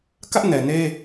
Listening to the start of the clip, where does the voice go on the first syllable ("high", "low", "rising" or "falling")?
high